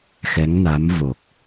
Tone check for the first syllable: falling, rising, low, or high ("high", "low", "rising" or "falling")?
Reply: rising